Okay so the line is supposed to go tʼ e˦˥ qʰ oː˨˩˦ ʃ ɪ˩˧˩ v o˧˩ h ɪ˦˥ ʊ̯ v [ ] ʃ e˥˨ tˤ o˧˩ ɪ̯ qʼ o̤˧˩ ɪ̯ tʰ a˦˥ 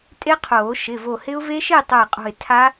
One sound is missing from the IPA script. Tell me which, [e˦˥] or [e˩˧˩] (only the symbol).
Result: e˦˥